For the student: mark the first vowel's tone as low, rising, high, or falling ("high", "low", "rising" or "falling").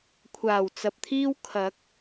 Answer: low